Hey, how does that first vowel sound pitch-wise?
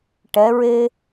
rising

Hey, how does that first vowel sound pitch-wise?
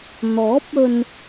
rising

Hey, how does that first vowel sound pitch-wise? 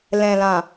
low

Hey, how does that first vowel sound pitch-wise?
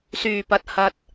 low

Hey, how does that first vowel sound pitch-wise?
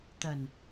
low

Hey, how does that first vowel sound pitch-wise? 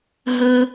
high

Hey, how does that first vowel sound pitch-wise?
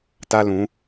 high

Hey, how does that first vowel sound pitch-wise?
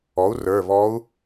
rising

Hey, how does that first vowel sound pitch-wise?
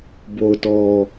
low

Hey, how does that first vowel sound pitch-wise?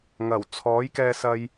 low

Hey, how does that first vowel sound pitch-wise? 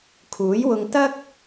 rising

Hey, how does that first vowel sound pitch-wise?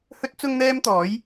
high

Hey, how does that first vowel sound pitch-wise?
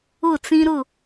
falling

